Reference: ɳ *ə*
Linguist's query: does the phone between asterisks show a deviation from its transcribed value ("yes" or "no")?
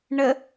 no